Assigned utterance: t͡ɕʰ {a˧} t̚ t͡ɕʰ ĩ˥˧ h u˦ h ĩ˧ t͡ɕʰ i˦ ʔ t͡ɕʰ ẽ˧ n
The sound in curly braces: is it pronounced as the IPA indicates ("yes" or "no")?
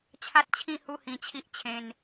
no